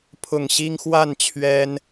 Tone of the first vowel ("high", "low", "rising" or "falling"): low